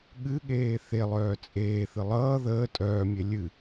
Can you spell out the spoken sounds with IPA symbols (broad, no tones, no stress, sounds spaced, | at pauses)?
ɠ ɨ ɠ eː θ e lˠ œː t͡sʼ eː θ ɨ lˠ ʌː ð əː tʼ œː mʲ e lʲ ɨ